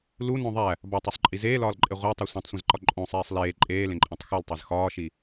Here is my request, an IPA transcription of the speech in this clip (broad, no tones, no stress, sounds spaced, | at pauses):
l u n õ ðˤ æ | b ɒ tˤ u sˤ ǃʼ i z eː l ɒː l ǃʼ e ʁʷ æ tˤ e sʷ ẽ tˤ sʷ ẽ z ǃ ɒ ǃʼ õ sˤ eː sˤ l eː ǃʼ eː l ẽ ǃʼ ẽ tˤ x u l tˤ e z x ɒː ʃ i